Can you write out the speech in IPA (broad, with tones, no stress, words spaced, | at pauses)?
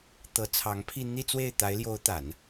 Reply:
t̪ɤ˧˥t͡sʰɑ˧˥ŋpʰi˥˧ n̪i˥˧t͡swe˥˩ɪ̯ t̪a˧˥ɪ̯ ljo˧˥ʊ̯t̪a˨˩˦n